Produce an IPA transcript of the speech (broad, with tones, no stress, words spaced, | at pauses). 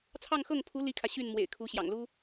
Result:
t͡sʰɑ˥˧ŋxɤ˥˩ŋpʰu˧˥ li˥kʰä˨ ɕy˥˩n mwḛ˨˩ɪ̯kʰu˧˥ɕjɑ̰˨˩ŋlu˥